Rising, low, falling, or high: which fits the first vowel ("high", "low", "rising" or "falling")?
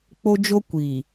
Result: high